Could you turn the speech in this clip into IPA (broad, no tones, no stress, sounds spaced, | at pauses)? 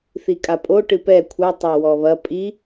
θ i kʼ a pʼ o ʈ ɨ p ɛ kʷʰ ɐ tˤ a w ɔ β ɐ pʼ i